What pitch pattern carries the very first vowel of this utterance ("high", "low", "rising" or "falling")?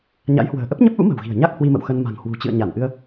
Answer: rising